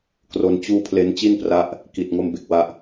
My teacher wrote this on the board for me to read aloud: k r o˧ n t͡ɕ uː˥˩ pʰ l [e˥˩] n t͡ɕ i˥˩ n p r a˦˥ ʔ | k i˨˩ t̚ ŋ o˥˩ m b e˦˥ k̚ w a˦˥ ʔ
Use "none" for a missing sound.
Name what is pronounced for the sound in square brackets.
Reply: e˦˥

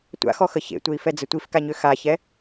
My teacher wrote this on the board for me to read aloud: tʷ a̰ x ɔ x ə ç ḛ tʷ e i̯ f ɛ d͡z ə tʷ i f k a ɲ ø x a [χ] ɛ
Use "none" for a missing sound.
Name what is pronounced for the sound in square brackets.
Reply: ç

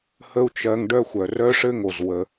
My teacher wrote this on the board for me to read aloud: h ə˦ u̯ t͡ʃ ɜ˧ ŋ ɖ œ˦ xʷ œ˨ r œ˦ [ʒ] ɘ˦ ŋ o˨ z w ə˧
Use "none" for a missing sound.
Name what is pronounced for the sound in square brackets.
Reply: ʂ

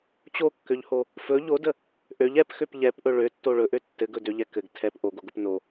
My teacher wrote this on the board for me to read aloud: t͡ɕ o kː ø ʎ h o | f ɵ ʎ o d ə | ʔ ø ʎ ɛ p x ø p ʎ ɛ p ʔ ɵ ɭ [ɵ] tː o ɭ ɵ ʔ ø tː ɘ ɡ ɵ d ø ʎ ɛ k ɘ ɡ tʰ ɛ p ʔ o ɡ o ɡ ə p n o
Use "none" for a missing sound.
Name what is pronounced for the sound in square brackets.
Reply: ø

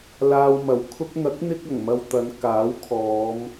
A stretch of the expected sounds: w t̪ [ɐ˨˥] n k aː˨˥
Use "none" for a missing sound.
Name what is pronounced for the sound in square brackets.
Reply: ɐ˨˧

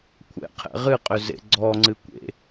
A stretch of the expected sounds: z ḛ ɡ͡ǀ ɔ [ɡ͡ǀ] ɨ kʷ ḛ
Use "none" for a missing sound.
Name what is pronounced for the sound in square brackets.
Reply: ŋ͡ǀ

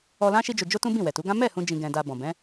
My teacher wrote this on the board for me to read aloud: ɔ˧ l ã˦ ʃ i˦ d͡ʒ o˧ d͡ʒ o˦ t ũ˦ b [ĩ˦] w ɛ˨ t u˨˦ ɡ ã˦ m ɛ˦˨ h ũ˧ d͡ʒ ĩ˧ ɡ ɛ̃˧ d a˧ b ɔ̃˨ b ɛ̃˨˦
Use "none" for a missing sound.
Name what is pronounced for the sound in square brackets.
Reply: ĩ˦˨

